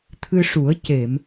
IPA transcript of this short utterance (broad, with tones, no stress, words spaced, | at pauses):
t̪ʰɨ˧ʂu˨˩˦ə̯ ce˨˩˨m